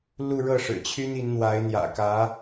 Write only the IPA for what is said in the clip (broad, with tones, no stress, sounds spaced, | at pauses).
l u˥˧ ɻ ɤ˥˩ ʂ ɻ̩˨˩ t͡ɕʰ y˥ n i˧˥ n n̪ w a˧˥ ɪ̯ n̪ j ä̰˨˩ k ä˧˥